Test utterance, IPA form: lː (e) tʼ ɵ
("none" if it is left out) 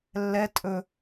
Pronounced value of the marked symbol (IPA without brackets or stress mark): ɛ